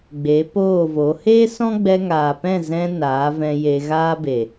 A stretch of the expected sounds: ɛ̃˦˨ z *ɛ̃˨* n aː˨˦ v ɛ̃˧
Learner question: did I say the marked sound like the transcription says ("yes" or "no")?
no